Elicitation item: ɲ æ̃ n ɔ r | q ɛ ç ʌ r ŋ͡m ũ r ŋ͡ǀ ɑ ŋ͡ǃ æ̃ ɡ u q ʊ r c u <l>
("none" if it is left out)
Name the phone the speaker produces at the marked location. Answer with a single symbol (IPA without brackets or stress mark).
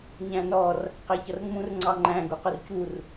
r